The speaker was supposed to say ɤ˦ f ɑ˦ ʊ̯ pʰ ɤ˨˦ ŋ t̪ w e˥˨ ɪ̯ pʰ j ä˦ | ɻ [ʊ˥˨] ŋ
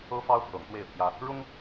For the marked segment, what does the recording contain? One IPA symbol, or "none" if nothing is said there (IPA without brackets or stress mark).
ʊ˦